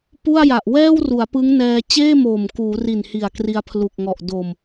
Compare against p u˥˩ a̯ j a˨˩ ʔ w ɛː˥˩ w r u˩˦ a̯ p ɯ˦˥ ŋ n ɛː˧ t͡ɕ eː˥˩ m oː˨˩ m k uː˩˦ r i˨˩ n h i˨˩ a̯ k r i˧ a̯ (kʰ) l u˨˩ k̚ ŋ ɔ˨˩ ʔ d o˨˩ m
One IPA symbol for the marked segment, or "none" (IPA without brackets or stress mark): pʰ